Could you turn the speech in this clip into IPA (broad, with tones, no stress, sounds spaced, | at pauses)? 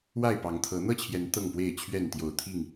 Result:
w a˥˨ ɪ̯ p ɑ˨˦ ŋ t̪ʰ ɤ˨˦ n̪ ɤ˥˨ t͡ɕʰ j ɛ˨˦ n t̪ ɤ˥˨ ŋ p w e˥˨ ɪ̯ t͡ɕʰ ɥ ɛ˥˨ n t̪ j o˨˩ ʊ̯ t̪ʰ i˥˨ ŋ